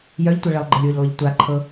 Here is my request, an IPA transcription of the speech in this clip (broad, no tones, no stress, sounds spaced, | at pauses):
j œ ʎ tʷ e ɭ e lˠ ɡ͡ǃ ə lʲ w ʏ ʎ lˠ ʏ ʎ tʷ a ǃʰ ɤ